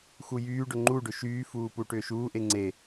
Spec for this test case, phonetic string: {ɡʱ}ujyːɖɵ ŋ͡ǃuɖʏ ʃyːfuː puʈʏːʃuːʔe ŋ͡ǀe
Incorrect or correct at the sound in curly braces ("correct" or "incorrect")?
incorrect